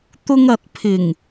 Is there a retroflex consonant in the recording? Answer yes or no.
no